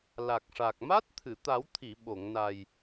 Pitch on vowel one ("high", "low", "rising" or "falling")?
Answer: low